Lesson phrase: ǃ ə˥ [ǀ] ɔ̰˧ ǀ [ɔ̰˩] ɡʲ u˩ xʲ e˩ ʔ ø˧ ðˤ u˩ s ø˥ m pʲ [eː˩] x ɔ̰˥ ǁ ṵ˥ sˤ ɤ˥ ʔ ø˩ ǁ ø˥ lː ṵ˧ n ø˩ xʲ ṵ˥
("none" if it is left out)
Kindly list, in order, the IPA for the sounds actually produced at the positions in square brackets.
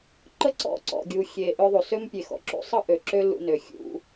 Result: ǀ, ɔ̰˩, e˩

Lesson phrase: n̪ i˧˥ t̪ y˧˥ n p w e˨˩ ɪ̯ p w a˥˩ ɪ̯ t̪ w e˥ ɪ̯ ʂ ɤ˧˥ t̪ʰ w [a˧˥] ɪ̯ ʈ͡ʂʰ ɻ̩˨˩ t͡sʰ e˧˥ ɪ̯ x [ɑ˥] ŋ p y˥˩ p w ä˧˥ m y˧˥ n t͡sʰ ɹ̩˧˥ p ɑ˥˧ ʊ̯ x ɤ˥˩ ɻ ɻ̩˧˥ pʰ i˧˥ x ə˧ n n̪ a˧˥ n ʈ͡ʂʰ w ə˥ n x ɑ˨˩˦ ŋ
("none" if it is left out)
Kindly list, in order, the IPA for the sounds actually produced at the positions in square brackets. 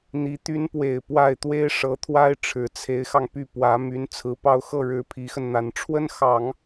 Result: a˥, ɑ˧

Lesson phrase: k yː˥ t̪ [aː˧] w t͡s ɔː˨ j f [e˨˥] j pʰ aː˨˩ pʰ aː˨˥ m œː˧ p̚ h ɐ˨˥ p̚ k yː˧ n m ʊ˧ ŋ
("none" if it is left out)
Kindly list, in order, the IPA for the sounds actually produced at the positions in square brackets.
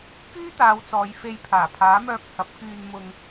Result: aː˨˧, e˧

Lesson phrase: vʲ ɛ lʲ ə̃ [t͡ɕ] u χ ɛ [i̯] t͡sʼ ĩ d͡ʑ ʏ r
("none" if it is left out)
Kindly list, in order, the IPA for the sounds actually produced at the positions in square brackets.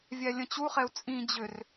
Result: t͡ɕ, u̯

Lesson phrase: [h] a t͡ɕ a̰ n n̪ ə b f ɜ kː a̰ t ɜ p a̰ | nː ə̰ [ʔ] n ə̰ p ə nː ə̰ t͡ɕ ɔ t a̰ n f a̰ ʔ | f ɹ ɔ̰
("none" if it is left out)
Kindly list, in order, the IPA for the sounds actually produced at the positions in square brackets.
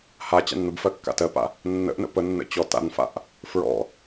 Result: h, ʔ

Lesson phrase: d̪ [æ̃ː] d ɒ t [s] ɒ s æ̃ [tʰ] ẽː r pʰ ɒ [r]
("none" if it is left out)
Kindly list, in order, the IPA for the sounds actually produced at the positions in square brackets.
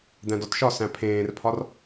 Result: æ̃, ʃ, pʰ, r

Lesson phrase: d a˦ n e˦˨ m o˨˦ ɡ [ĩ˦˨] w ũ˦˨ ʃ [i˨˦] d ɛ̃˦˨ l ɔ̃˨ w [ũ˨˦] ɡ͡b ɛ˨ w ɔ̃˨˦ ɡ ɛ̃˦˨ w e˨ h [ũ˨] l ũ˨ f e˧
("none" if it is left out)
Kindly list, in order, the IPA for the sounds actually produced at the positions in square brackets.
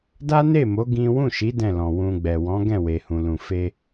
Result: ĩ˦, i˨˦, ũ˧, ũ˨

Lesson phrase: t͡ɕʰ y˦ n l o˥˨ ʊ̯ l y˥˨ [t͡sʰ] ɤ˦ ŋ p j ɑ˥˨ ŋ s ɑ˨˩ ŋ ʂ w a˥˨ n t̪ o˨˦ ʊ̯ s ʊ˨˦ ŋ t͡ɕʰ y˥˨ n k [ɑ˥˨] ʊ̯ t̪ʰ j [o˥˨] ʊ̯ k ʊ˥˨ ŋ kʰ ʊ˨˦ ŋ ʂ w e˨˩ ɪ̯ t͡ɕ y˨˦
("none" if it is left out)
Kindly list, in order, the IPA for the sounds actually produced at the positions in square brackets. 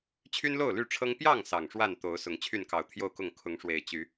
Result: ʈ͡ʂʰ, ɑ˨˩, o˥˨

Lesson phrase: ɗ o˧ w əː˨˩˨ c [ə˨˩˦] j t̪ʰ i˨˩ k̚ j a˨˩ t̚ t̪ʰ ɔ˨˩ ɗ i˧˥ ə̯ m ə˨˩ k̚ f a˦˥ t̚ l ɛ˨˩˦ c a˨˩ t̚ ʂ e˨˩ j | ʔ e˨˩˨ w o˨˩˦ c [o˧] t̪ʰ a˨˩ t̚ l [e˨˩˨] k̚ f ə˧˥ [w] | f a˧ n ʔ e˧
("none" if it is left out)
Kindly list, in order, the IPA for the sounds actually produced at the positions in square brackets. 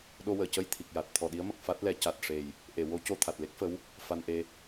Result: ə˧, o˧, e˦˥, w

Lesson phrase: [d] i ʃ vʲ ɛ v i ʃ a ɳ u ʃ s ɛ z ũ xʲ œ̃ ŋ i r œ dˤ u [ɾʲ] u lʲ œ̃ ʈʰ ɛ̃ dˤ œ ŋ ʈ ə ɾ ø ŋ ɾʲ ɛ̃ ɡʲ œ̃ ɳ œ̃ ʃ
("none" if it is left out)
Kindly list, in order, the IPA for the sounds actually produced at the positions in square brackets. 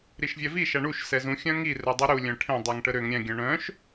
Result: ɾ, ɾ

